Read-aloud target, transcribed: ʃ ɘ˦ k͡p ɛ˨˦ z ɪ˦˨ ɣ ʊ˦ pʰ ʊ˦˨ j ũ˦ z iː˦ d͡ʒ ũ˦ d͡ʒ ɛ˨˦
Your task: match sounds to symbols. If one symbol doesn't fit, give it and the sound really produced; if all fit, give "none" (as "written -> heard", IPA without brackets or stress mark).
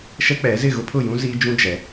ɘ˦ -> ɛ˦